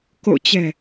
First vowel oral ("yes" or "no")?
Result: yes